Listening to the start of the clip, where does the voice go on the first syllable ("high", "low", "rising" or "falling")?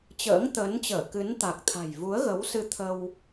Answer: rising